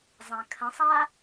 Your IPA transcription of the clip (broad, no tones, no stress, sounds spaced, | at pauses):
zˤ ã kʰ ə̃ sˤ a